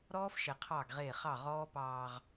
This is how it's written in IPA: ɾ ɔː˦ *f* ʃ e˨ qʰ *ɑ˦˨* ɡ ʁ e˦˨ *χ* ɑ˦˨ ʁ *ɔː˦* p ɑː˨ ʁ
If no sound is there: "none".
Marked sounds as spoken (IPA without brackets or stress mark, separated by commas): f, ɑ˦˨, χ, ɔː˦